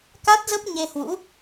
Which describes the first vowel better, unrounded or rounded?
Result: unrounded